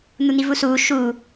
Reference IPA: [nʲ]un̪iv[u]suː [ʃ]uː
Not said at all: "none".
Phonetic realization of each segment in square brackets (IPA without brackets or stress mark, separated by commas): n̪, u, ʃ